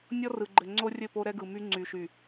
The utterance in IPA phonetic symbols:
nʲ ɔ˦ r ɯ˨ ɡ͡ǃ ɘ˨ ŋ͡ǀ o˦ rʲ ɘ˦˨ p o˦ ɾ ɛ˦ ɡ ɯ˨ m y˦ ŋ͡ǀ y˨ ʃ y˨

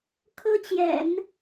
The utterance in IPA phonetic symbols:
kʰ ɤ˥ t͡ɕ j ɛ̰˨˩˦ n

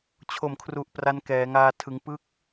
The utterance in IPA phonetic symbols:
t͡ɕʰ o˨˩ m kʰ r u˨˩ ʔ p r a˦˥ n k ɛː˩˦ ŋ aː˧ tʰ ɯ˩˦ ŋ p ɯ˦˥ k̚

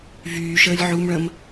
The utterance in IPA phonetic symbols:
v yː ʃ əː lʲ ʕ u m ɭ ə̃ m

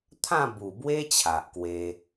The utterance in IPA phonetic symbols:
t̪ʰ ã˥˧ b u˨˩ b w e˦ t͡ɕʰ a˨ ʔ k w e˧

